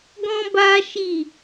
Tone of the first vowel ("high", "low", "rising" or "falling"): high